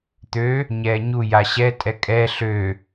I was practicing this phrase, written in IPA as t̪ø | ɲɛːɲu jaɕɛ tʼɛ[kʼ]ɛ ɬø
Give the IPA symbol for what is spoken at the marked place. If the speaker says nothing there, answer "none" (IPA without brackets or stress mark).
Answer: kʼ